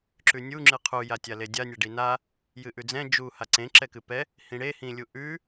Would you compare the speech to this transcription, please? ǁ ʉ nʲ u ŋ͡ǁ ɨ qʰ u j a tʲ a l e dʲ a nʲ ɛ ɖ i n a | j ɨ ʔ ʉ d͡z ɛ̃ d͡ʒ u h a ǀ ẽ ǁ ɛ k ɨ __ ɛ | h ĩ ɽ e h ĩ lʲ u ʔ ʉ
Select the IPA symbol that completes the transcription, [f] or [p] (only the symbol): p